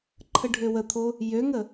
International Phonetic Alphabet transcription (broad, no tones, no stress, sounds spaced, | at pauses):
ǃʰ ə ɖʱ ø w ə t̪ʰ o | j ø ŋ ə